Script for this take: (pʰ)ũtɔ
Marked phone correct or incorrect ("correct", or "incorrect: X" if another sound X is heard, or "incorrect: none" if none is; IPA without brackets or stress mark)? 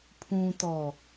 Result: correct